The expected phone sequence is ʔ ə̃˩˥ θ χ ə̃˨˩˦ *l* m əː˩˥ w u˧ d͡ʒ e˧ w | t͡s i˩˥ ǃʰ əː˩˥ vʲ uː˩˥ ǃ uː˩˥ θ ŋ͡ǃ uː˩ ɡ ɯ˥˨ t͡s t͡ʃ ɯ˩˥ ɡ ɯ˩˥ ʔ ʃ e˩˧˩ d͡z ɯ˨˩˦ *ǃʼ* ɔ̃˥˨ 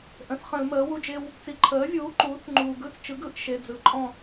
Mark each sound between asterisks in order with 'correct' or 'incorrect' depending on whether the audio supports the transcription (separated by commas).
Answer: correct, correct